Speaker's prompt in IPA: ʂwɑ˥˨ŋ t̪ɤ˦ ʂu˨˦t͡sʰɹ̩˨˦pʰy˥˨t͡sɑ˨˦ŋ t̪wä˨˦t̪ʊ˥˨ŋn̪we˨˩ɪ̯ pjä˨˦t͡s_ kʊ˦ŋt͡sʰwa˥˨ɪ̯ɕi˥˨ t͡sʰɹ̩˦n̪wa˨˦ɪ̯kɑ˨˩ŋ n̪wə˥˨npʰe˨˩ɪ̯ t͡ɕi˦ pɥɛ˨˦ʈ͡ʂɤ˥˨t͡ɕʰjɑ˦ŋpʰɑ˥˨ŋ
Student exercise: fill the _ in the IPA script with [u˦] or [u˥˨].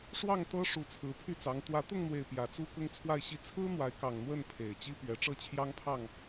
u˦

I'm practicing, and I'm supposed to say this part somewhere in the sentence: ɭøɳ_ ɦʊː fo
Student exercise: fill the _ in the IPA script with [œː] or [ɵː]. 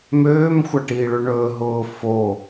ɵː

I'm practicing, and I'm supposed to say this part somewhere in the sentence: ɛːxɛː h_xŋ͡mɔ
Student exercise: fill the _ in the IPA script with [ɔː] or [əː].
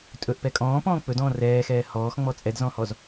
ɔː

